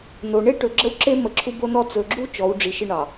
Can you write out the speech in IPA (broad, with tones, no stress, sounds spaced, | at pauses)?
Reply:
n o˨ ɳ e˦ ʈ ɵ˨ ɡ͡ǁ ə˦ w ǁ e˦ m ə˨ ǁʰ u˦ b o˦ n ɔ˦ t͡s ɵ˨ ɡ͡ǁ u˦ t͡ʃ ɔ˨˦ w ɖ͡ʐ i˨ ʃ ɪ˦ ɳ ɑ˨